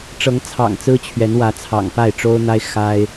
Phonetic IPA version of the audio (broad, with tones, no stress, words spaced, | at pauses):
ʈ͡ʂɤ˨˦ŋt͡sʰɑ̰˨˩ŋ t͡sɹ̩˦t͡ɕʰɥɛ˨˦nwä˨˦ t͡sʰɑ̰˨˩ŋpa˥˨ɪ̯ʈ͡ʂo˦ʊ̯n̪a˦ɪ̯ xa˦ɪ̯